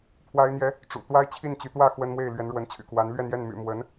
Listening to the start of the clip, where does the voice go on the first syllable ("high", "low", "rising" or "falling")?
high